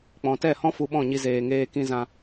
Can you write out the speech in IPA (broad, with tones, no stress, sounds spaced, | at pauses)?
k͡p ɔ̃˨ t ɛ˦˨ h ɔ̃˦ f u˧ ɓ ɔ̃˦˨ ɲ i˧ z eː˨ ŋ eː˧ k ĩ˧ z ã˧